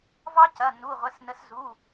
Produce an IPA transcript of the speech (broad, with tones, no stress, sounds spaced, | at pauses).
v ɑ˦˥ c ɐ˩˧˩ n u˩˧˩ ʁʷ ə˩˧˩ s n ə˨˦ s z u˩˧˩